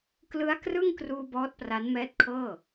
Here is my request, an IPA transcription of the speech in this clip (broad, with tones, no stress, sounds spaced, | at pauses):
k l ɯ˦˥ a̯ k r ɯ˥˩ ŋ k r uː˧ b ɔː˦˥ t̚ p r a˦˥ n m ɛː˦˥ t̚ kʰ ɤː˥˩